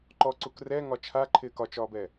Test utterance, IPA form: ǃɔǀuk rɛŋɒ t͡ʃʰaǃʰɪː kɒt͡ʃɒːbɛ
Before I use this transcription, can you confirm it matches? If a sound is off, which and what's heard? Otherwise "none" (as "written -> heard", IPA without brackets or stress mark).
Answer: none